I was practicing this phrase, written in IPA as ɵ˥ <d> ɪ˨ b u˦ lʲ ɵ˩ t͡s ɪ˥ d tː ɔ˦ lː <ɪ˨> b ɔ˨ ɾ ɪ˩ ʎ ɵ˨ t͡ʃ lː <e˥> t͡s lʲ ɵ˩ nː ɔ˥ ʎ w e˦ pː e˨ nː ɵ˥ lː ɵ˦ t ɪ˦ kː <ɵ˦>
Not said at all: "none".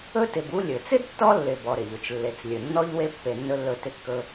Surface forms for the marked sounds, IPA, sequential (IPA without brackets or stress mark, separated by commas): t, ɪ˨, e˨, ɵ˦